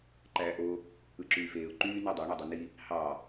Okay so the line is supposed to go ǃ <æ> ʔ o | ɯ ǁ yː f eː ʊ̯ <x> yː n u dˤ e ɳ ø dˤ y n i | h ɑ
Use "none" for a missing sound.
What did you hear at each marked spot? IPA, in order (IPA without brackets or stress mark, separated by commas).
æ, ǃ